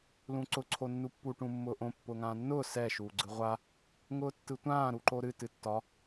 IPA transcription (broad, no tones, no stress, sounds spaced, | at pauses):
l ũ ǀ ʊ ǀʰ o nː u pː u ʈ ũ mː ʊː ʔ õ pː ʊː ŋ ãː nː ʊː s ɛ ʃ uː ɡ͡ǀ ɯ ʁʷ a | ŋ ʊː tː ɯ tʷ ãː ɾ u ǃ o ɾ ɨ t ɨ tː ɒ